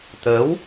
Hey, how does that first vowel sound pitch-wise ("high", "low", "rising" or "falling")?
rising